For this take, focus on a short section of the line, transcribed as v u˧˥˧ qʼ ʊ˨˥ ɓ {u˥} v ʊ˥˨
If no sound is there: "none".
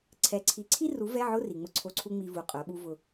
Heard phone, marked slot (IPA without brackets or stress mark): u˥